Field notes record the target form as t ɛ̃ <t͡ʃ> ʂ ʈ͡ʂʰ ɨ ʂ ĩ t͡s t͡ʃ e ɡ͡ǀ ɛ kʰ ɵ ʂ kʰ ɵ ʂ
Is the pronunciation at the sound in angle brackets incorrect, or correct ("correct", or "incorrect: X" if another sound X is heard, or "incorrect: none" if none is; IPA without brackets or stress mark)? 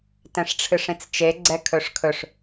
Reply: incorrect: none